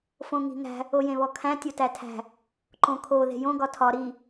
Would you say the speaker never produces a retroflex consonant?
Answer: yes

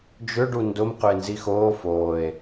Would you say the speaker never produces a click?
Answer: yes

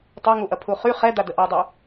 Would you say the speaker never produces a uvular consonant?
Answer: no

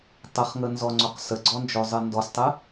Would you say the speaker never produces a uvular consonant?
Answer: no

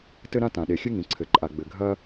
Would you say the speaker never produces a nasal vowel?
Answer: no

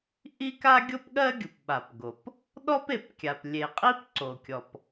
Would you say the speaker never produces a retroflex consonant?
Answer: yes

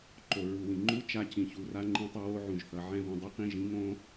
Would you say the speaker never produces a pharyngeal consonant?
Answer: no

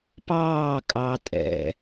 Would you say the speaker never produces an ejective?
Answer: no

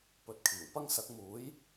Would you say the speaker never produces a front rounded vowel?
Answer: yes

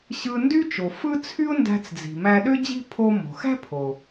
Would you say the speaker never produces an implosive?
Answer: no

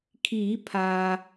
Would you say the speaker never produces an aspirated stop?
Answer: no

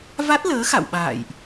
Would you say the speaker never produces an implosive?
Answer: no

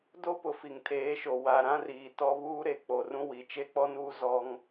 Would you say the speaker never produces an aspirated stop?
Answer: no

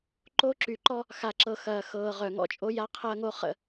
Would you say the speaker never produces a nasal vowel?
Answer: yes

